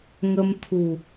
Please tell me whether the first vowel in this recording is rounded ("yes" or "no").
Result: no